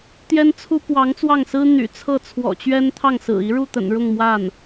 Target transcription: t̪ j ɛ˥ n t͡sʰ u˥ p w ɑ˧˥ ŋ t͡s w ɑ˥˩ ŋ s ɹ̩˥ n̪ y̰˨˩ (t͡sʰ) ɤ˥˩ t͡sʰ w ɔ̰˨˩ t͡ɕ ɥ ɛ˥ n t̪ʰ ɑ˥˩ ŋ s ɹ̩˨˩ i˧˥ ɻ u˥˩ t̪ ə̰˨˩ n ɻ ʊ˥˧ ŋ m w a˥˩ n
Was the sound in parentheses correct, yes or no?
yes